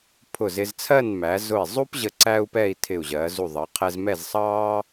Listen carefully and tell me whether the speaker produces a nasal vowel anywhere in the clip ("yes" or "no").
no